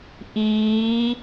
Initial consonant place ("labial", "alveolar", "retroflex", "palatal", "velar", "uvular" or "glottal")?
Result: glottal